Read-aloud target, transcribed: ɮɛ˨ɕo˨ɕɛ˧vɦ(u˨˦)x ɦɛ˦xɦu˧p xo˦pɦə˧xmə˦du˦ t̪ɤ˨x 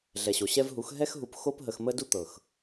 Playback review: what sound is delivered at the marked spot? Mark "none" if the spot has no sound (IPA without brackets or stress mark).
u˨˦